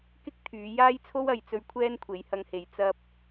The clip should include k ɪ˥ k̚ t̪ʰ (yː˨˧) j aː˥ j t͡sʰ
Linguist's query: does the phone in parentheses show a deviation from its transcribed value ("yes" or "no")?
no